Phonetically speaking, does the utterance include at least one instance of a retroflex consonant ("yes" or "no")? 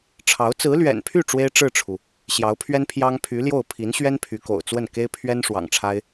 yes